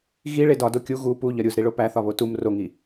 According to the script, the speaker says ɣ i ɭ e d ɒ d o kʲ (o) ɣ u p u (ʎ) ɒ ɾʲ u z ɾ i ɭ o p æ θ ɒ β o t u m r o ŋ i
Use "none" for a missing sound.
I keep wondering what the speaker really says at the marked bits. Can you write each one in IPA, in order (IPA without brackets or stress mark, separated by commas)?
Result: u, ʎ